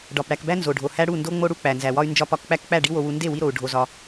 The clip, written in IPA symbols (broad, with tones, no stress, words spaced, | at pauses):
ɖɒ˨p ɽæ˨kbæ˦ nzo˨ɖʱo˨hæ˦ ɽu˦˨ndo˦ŋ͡mo˦ ɽu˧k͡pæ˨nzæ˨wɒ˦y̯ nd͡ʒɒ˧pɒ˧kk͡pæ˦kk͡pæ˦˨ ɖi˦wo˧wu˧ nde˦˨wi˧ɾo˨u̯ ɖʱo˧zɒ˧